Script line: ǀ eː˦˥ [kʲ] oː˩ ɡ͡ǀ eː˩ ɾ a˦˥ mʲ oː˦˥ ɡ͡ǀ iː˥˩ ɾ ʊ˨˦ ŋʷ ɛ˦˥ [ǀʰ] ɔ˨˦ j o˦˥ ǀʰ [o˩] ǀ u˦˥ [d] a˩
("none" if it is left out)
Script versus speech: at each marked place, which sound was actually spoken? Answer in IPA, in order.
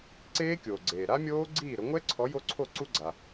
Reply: kʲ, ǀʰ, o˥˩, ɡ͡ǀ

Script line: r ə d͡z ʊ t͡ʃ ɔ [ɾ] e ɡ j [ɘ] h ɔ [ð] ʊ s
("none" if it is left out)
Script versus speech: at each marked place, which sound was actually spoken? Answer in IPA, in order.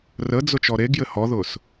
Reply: ɾ, ɘ, ð

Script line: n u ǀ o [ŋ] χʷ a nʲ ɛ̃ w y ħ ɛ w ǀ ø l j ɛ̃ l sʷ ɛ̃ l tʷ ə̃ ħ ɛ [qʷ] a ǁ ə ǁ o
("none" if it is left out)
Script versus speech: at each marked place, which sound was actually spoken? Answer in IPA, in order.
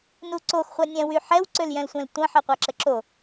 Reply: x, qʷ

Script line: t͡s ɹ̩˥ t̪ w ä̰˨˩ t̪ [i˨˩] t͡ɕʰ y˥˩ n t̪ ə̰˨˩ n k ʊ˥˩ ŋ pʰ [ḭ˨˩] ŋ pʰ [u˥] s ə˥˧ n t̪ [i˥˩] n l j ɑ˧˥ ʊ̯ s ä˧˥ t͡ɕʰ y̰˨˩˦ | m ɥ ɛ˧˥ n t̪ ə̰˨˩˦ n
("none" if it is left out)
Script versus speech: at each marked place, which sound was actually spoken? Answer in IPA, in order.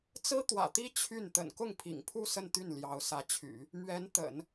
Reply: i˥, ḭ˨˩, u˥˧, y˥˩

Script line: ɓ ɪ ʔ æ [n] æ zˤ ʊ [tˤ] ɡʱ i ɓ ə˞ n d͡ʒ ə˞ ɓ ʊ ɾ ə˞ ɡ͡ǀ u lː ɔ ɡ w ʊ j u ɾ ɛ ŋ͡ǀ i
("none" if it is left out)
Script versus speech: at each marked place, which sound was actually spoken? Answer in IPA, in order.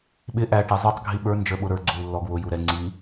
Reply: ʈ, tˤ

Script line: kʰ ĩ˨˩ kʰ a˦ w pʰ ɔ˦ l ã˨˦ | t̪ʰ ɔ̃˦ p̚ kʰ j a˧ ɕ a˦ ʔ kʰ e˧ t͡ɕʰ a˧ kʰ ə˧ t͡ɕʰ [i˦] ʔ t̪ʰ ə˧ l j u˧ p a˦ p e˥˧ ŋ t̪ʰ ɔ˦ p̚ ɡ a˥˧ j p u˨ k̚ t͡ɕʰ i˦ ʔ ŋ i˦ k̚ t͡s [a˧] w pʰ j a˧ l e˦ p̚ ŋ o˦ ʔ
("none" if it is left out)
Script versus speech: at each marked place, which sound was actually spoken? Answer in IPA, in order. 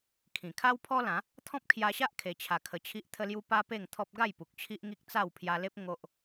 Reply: i˦, a˥˧

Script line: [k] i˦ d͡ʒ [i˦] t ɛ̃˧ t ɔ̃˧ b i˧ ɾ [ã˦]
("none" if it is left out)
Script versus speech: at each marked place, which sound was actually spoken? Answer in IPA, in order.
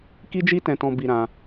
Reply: k, i˦, ã˧

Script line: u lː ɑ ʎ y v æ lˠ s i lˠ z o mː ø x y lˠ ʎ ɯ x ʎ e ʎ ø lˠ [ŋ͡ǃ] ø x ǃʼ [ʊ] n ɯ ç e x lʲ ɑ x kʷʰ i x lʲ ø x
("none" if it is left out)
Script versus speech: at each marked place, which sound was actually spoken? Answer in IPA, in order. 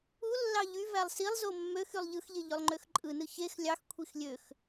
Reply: ŋ͡ǃ, ɯ

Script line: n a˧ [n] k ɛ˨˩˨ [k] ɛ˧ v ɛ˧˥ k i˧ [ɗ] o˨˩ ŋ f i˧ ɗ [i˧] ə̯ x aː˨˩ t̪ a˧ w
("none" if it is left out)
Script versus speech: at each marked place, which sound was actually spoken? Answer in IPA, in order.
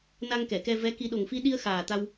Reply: ŋ, k, ɗ, i˧

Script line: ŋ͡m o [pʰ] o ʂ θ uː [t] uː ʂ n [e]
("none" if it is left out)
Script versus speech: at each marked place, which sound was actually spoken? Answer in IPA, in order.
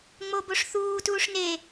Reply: b, t, e

